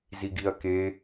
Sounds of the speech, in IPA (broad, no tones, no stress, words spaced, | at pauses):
ziɡiɐ̯ke